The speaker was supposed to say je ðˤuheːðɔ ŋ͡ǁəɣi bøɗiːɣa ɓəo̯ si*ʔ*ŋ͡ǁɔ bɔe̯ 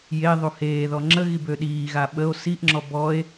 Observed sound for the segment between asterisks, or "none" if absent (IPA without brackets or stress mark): ʔ